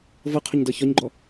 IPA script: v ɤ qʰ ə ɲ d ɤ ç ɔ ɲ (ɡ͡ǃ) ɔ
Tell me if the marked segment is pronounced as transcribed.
yes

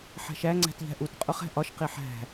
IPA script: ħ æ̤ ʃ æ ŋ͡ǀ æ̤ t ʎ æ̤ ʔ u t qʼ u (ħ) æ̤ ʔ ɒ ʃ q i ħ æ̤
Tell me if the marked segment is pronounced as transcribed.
no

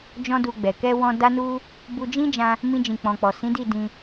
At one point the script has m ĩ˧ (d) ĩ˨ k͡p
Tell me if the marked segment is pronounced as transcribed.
no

